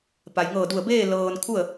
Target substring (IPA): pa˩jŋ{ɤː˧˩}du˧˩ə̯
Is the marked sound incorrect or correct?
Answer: correct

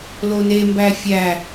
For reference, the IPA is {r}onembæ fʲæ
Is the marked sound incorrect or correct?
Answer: incorrect: l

